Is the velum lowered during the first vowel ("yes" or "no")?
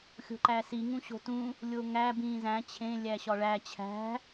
no